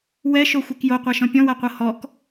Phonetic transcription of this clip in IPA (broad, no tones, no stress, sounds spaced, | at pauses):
w ɛ ʃ o xʷ e k j o qʷ a ʃ ɔ̃ pʲ ɔ̃ w a qʷ ɤ h ɔ k